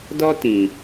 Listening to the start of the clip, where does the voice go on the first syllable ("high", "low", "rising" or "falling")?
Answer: high